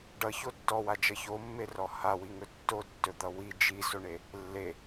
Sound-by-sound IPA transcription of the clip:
ɖ ʌ ç o tː ɔ w a d͡ʒ ʌ ç o mː e r ɔ h a w i ŋ ɵ tː o tː ɵ d̪ ʌ w i d͡ʒ i s o ɳ e | lː e

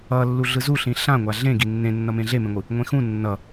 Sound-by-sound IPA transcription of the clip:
ʌ lː u ɮ ɯ z u ɬ ĩ ɬ ã ŋʷ a ɮ ẽ ɡ i nː ẽ nː ʌ m ẽ ɮ e m ẽ ŋʷ ɯ | ŋʷ ẽ x ũ nː ʌ

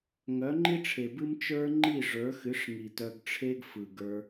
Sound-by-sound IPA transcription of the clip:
ŋ œ˨˦ ŋ͡ǃ i˦ ʈ͡ʂʰ e˨ b ɨ˦ m t͡ʃ ə˞˦ ŋ͡ǃ i˦˨ ʐ ə˞˨˦ x ɨ˨˦ ʂ ŋ i˨ t œ˧ ɡ ʈ͡ʂʰ e˦ ɡ f ɯ˨ ɡ ə˞˧

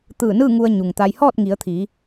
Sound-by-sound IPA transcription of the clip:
t̪ ɯː˧˩ n ɯː˥˨ ŋ u˧ ə̯ ɲ u˩ ŋ t̪ a˧ j h ɔː˥˨ t̚ ŋ i˩˧ ə̯ t̪ʰ iː˩˧

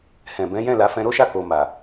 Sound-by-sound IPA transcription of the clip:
h ɛ̃˨ b ɛ̃˨˦ j ɛ̃˦˨ l a˨˦ f ɛ̃˧ ɾ o˦ ʃ a˦˨ k o˨ m a˨

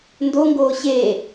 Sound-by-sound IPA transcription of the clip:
n d o ŋ ɡ oː ɕ e

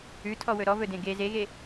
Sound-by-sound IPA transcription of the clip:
ʉ tʰ ɔ w ɵ ɾ ɔ v ɵ d ẽ ɡ e z e ɣ e

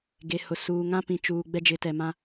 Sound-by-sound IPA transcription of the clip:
ɡ e˨ h ʊ˨ s uː˨ ŋ ã˦ p ĩ˨ t͡ʃ uː˨ ɡ͡b ɛ˦ d͡ʒ ɪ˨˦ t ɛ˨ m ã˦

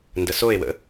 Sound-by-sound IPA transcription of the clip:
n d ə s o e̯ w ə̰

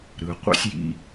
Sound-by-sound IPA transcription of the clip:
ɾ ɯ˨ qʷ ḛ˦ sʲ j ḭ˧

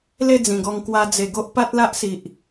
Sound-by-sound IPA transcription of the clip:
l e˥˧ d͡z ĩ˨˩ ɡ ɔ˧ ŋ k w a˧ d͡z e˨˩ ɡ o˦ ʔ p a˦ t̚ l a˦ ʔ s i˨ ʔ

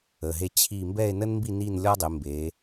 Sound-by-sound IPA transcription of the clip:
ə˩˧˩ ɦ e˥˧ t͡ɕʰ i˥˧ m b ɛ˥˧ e̯ n ə˥ n m b i˥˧ n i˥˧ n lʲ ɔ˥ dˤ e˩˧ m b e˩˧

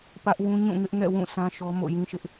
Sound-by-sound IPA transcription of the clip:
p ä˦ ʔ w ũ˦ ɲ ũ˦˨ ŋ ɪ˦ ʔ ŋ ɛ̰˦˨ w ũ˦˨ s ã˦ ʃ ɔ˦ m o̰˦˨ j ĩ˦ ʃ ɪ˦ ʔ

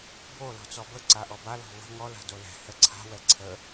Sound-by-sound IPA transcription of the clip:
b o l ɔ̤ t͡s ɔ b ə ǀ a ʔ ɔ b a l ɔ̤ v ə̤ ŋ ɔ l a̤ d o l ɛ̤ h ɛ ǀʰ a̤ w ɛ ǀʰ ə

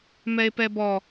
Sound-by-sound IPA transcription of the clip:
m ɛ e̯ p ɛ b ɔ

